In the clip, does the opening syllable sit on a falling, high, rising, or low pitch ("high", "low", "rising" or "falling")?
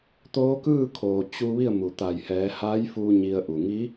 rising